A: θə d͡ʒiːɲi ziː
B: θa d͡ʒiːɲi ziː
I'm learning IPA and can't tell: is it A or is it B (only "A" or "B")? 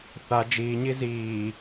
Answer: B